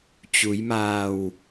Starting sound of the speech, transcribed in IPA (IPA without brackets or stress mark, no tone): t͡ɕ